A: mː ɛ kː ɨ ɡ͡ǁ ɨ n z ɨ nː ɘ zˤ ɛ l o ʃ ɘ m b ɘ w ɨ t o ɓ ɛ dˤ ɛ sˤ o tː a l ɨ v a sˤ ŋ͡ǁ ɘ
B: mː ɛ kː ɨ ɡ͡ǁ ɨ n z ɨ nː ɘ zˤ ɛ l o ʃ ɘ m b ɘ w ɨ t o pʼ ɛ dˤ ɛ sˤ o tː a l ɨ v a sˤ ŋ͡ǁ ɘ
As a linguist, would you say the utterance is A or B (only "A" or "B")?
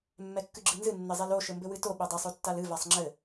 A